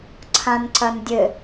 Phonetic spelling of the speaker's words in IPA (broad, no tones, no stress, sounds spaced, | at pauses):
ǀʰ ã n ǀ ɐ n dʲ ɘ